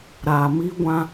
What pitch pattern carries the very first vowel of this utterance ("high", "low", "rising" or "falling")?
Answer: low